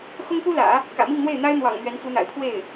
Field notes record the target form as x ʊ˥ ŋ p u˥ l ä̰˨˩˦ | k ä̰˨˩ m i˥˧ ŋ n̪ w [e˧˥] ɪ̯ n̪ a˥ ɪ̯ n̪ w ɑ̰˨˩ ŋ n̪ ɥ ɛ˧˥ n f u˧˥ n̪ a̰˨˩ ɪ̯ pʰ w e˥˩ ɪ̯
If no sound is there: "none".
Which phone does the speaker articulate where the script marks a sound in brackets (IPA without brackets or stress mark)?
e˥˩